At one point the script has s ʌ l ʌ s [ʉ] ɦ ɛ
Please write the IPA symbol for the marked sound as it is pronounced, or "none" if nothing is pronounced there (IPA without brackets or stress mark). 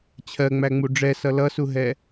u